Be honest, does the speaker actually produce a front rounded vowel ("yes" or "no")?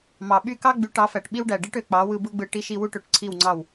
yes